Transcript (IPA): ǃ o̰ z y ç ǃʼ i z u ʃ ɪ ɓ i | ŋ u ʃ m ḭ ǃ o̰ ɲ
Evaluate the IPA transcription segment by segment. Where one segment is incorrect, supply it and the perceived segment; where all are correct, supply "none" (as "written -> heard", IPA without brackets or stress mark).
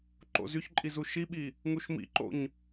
ɪ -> i